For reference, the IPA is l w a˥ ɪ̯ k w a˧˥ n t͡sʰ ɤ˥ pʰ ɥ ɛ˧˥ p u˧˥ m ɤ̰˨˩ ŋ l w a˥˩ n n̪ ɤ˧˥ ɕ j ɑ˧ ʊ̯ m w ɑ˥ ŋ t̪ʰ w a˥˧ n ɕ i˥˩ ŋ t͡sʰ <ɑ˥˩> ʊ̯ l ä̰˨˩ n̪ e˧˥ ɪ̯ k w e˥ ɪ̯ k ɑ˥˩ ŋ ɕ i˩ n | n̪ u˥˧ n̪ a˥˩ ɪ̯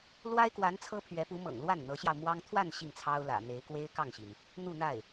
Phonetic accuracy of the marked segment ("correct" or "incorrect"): incorrect